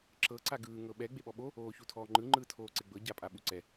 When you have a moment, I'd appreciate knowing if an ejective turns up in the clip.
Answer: yes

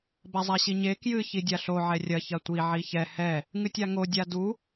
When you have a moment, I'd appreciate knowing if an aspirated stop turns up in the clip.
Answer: no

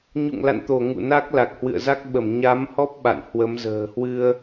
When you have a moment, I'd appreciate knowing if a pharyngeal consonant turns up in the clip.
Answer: no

